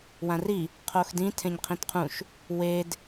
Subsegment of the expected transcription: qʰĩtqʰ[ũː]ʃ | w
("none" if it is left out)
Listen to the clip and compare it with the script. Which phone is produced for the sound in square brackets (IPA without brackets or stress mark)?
ũ